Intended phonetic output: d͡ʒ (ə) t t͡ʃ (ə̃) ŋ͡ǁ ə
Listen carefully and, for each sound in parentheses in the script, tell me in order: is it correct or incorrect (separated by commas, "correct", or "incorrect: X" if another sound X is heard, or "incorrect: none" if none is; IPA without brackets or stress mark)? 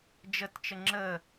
correct, incorrect: ə